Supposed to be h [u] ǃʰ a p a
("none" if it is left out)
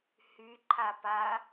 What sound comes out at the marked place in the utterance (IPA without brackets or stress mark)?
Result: y